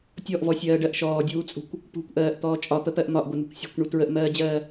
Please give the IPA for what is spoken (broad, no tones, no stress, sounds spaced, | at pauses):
tʲ ɔ ʔ v ɔ sʲ ɜː ɖ ɜ ʔ ʃ ɔː dʲ uː t͡sʼ ṳ kʷ | p ṳ kʷ ʔ ɜː ʔ t̪ ɔː t͡ʃʼ ɒ p ə p ɜ ʔ m ɒ ʔ ɡʷ ɘ n ṳ kʷ sʲ ṳ kʷ ɳ u t ɹ ə ʔ m ɜː d͡ʑ ɜː